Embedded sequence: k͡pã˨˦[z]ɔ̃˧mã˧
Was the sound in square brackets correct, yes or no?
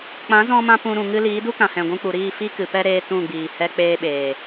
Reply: yes